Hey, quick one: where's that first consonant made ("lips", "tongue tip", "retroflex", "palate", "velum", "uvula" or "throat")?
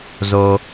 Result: tongue tip